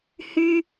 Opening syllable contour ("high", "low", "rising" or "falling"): high